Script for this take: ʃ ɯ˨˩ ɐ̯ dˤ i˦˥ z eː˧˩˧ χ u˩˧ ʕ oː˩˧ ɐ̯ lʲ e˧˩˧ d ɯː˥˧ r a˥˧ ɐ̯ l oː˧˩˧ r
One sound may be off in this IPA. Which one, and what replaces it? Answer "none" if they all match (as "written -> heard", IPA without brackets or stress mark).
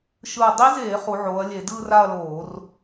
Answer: none